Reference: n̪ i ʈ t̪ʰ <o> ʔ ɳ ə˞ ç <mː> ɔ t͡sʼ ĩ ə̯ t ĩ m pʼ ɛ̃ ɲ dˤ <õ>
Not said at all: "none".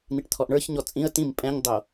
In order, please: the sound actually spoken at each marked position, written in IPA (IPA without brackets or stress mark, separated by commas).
ɔ, ɲ, o